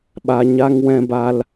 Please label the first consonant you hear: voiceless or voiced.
voiced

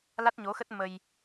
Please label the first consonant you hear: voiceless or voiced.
voiced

